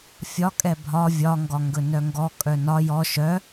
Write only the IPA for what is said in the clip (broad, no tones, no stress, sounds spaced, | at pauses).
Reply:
fʲ ɒ kʼ ɛ bʱ ɒ vʲ ɒ ŋ ɡ ɒ ŋ ɡ ɵ n œ ŋ ɡ ɔ kʼ œ n ɒ j ɔ ʃ œ